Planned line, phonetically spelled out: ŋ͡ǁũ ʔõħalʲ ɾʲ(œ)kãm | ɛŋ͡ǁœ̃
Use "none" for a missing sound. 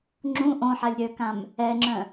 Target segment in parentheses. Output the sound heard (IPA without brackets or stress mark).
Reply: œ